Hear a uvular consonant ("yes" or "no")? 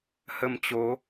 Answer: no